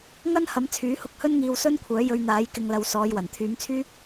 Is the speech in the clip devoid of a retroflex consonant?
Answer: yes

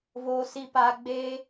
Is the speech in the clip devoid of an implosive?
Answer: yes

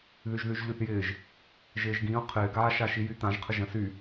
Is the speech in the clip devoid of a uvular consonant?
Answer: no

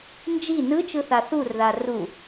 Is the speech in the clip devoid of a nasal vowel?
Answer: yes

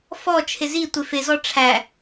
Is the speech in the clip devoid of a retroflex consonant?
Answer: no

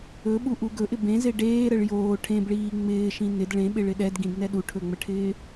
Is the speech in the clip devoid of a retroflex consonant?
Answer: no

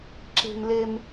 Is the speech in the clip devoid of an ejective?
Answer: yes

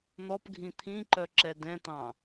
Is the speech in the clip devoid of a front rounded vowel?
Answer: no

